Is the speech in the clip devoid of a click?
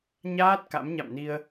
yes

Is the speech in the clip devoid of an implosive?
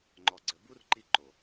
yes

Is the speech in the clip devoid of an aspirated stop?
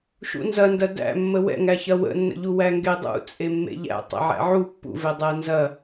yes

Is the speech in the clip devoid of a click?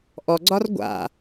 no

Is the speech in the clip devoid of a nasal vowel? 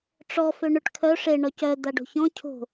no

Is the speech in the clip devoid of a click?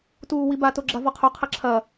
no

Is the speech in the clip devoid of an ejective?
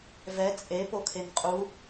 no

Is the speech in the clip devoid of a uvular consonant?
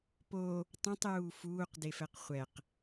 no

